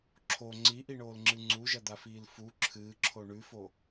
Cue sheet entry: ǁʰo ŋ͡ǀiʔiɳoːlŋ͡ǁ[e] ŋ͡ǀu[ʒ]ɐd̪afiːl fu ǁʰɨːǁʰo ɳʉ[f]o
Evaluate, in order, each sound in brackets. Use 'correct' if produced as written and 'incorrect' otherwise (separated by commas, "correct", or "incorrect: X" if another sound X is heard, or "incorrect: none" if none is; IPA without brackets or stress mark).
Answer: incorrect: ɨ, correct, correct